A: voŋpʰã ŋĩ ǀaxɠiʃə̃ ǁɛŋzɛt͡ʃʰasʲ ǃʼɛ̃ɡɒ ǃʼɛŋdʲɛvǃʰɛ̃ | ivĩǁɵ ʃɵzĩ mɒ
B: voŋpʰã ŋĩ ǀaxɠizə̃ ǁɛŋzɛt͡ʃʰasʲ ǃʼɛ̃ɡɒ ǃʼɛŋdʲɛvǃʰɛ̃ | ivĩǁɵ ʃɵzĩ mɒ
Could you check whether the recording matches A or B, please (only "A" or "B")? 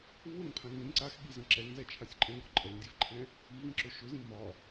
B